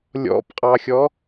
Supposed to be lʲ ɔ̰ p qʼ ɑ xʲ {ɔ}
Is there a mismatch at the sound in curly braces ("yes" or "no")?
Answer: no